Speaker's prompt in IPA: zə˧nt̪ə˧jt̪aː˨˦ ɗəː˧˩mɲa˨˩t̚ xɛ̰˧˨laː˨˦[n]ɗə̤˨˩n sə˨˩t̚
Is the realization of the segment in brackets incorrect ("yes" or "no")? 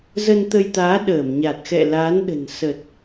no